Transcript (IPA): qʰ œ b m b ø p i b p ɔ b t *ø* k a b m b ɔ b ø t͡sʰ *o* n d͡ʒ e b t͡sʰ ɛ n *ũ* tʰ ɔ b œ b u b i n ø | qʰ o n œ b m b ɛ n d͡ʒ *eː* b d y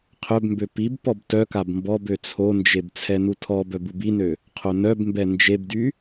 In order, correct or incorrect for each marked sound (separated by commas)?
incorrect, correct, incorrect, incorrect